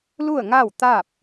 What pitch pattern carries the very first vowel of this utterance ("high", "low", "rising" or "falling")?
falling